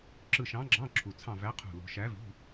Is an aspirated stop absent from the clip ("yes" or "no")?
no